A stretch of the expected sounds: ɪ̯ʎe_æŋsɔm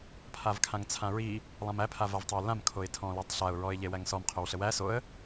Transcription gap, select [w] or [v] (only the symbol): w